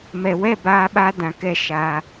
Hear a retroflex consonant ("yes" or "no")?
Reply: no